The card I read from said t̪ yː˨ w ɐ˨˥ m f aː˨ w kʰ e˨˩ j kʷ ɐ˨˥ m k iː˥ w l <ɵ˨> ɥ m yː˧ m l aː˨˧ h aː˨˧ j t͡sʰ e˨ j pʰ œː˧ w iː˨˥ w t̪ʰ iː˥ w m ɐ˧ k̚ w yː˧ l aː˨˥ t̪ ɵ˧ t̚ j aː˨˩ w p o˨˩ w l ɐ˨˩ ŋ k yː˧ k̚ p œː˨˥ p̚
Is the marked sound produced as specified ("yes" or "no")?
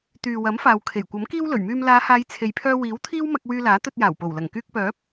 no